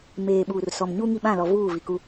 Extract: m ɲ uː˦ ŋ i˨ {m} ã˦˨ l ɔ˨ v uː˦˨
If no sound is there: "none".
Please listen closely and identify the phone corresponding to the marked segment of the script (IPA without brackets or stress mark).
ɓ